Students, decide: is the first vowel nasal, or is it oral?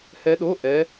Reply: oral